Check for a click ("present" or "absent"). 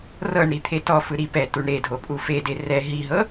absent